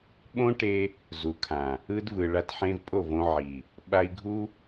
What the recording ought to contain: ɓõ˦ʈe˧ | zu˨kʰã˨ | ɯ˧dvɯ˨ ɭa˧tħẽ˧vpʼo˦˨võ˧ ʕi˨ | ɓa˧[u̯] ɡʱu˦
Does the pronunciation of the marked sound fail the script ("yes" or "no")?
yes